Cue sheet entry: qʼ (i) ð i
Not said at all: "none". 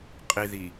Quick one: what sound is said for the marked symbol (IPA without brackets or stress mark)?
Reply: i